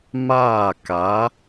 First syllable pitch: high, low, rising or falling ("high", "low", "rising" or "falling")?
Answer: falling